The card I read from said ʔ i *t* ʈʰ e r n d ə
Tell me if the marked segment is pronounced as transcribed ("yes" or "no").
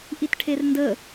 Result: yes